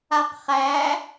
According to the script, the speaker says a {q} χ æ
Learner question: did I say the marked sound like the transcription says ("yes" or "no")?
yes